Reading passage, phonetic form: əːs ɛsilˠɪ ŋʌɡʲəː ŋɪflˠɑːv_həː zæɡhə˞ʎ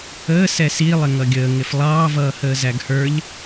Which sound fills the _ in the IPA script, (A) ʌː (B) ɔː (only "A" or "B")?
A